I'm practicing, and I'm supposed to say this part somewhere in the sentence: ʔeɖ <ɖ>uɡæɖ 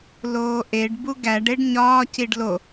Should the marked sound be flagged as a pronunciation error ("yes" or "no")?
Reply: yes